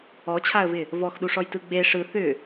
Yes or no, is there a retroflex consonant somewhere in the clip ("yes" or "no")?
yes